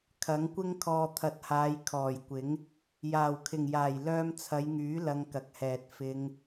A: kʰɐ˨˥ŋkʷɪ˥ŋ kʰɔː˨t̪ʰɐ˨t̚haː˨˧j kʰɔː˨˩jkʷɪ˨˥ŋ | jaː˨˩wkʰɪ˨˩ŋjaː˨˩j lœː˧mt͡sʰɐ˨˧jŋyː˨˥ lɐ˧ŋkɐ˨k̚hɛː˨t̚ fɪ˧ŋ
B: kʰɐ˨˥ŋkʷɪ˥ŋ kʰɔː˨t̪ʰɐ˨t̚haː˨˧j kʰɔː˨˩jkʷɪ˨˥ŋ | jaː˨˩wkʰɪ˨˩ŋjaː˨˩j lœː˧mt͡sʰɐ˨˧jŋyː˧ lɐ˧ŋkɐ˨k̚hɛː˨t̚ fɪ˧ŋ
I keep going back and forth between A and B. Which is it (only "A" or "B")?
A